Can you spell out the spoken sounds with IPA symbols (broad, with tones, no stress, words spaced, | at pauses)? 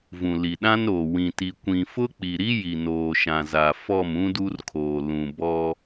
vũ˨li˨ɗã˦nɾoː˨ wĩ˨ti˨ kʷĩ˨fʊ˦ k͡pi˨ɾi˦ ji˨ noː˨ʃã˨za˨ fɔ˦˨m ũ˦du˦rkʰoː˨ lũ˨bɔ˦